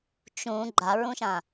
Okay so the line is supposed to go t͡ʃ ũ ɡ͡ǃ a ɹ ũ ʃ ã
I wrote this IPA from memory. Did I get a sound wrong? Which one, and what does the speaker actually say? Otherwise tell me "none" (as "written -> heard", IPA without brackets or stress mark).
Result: none